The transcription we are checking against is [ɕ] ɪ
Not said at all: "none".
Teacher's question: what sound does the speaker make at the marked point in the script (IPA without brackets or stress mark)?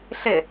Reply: ɬ